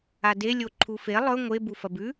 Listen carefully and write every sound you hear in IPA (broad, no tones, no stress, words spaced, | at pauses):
ade lʲoǃʰufe lˠɵ ŋʷe bufɐbʉ